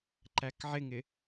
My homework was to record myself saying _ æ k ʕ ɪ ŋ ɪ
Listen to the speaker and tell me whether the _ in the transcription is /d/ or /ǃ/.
ǃ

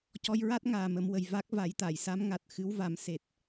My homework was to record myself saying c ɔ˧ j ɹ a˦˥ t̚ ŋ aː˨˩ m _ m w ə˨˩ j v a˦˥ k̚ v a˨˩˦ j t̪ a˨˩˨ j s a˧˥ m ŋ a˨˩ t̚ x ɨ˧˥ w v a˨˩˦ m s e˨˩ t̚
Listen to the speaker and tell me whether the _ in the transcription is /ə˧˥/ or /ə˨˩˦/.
ə˨˩˦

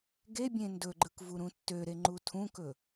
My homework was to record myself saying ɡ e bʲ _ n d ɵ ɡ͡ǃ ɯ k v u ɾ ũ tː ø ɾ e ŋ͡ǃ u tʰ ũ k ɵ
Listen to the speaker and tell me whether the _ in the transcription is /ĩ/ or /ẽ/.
ẽ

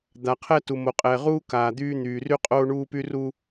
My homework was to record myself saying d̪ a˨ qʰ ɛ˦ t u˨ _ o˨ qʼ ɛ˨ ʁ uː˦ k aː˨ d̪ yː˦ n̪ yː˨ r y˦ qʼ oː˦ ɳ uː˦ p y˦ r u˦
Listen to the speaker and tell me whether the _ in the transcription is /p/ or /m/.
m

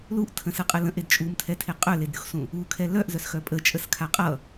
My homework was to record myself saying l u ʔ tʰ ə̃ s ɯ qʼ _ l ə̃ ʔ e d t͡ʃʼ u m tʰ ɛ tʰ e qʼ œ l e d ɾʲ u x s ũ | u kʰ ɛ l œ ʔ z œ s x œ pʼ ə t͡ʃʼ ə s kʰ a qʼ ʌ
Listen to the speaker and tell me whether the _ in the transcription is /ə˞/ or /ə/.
ə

